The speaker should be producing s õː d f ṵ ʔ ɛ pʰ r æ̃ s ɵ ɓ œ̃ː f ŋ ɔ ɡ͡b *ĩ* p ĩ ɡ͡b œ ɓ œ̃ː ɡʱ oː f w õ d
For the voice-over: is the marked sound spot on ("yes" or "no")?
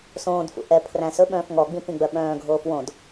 yes